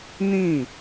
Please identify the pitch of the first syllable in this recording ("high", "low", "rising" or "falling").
falling